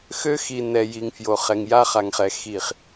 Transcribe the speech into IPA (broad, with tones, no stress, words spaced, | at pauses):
xø˦xi˨ nɛ˨ ji˨ŋfjo˨χɛ˨ŋ ja˦χa˨ŋχɛ˨ xi˨χ